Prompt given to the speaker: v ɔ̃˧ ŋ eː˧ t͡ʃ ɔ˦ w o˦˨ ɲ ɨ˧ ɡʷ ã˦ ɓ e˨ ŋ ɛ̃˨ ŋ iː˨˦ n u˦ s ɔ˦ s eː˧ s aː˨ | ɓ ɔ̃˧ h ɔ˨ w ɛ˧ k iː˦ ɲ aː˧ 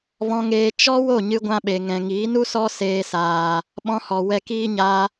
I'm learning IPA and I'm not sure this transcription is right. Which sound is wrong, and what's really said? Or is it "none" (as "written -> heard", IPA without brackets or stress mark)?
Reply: ɨ˧ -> ɨ˦